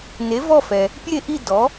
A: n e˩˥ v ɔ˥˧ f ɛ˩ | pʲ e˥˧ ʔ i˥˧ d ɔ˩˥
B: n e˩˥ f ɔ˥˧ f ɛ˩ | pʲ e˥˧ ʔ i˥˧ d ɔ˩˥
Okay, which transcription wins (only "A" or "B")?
A